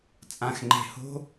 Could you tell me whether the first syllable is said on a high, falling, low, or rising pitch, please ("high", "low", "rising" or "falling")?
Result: low